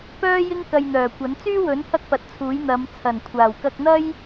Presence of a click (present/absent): absent